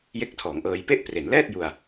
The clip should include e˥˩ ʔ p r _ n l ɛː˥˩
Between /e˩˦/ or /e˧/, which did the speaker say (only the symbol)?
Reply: e˩˦